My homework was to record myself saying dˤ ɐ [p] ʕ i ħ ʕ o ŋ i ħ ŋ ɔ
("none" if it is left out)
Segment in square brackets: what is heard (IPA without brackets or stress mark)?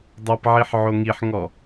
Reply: p